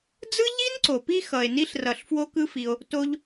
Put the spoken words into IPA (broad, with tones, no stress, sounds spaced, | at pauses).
d͡z ɯ˥ ʎ i˥ n ǀ o˩ p i˦ x ʌ˩ e̯ n i˥ ɬ r ʌ˨ ɬ f w o˥ k ɯ˥ f i˨ o̯ | t o˦ ʎ